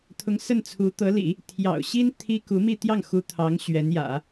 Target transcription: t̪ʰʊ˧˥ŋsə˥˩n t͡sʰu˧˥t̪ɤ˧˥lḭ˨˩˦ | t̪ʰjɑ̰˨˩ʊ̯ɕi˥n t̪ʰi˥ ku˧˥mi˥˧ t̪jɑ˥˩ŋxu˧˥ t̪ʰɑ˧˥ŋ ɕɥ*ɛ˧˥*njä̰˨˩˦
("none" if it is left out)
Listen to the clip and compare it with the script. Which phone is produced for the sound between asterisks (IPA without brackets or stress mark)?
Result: ɛ˧˥